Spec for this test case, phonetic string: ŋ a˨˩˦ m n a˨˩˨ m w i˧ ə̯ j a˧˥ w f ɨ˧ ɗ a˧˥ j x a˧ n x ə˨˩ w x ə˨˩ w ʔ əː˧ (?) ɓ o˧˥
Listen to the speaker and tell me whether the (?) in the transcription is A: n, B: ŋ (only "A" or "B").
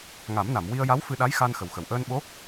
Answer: A